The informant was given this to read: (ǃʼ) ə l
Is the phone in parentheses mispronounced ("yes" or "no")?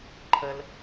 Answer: yes